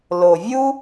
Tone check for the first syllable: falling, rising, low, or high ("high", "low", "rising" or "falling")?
low